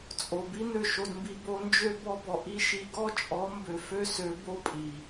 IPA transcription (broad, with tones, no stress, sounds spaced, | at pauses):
t͡sʼ o˨ b i˦ n̪ ø˦˨ ʃ o˧ d m b i˧ b o˧ n d͡ʒ ø˦ b ɔ˧ b ɔ˨ ʔ i˦ ʃ i˧ ɡ ɔ˦ t͡ʃʼ ɔ˨˦ m b ø˨ f ø˦ s ø˨˦ b o˦ pʼ i˨